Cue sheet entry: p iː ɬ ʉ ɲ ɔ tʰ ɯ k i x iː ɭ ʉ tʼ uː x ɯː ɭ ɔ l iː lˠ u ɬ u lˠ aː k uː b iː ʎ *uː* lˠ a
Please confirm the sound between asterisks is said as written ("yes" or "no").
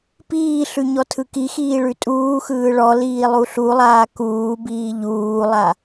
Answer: yes